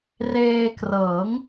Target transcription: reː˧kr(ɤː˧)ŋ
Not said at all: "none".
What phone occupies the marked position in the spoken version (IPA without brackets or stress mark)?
ɤː˩˦